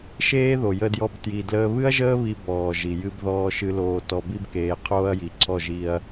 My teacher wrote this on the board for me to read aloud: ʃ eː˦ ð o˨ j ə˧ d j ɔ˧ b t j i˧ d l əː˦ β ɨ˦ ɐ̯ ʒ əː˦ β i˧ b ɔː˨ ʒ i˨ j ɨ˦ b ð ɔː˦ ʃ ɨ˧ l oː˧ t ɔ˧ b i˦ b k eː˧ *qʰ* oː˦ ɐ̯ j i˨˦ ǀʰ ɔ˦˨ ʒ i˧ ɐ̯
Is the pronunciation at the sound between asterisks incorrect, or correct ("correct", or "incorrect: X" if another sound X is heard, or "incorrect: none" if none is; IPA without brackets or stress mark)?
correct